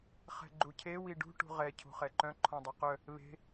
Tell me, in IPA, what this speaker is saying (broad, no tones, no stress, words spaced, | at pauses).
χɛ̤ɡ͡ǃucʰe wiɖṳ ʈṳʁɛ cʰṳχɛǃœ̃ ǃʰɔ̃dˤiqœ | βe̤